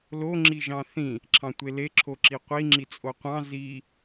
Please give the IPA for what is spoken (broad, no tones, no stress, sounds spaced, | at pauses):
l o ŋ͡ǁ i ʒ ɑ̃ θ ĩ | ǁʰ ɑ̃ tʷ e l e ǁʰ o ǁ i qʷ i ŋ͡ǁ i t͡sʼ o qʷ ɑ̃ z i